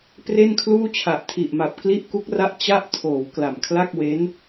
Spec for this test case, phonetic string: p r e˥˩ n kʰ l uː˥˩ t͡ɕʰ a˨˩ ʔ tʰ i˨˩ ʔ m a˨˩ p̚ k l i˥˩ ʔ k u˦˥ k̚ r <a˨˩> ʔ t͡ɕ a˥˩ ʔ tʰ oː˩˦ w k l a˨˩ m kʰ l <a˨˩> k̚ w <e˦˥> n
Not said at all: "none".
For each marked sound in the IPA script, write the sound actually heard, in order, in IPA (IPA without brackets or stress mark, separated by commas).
a˦˥, a˥˩, e˦˥